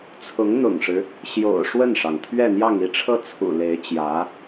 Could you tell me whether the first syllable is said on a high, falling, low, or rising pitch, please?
rising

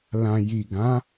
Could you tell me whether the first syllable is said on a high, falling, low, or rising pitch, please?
low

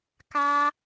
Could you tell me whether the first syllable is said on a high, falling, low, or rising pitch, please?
high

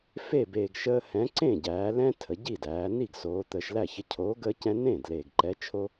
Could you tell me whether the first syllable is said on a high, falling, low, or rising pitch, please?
falling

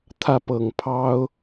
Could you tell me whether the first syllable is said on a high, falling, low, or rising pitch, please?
falling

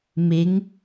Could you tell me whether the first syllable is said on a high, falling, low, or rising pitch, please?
rising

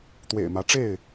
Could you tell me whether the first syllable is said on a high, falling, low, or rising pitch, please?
low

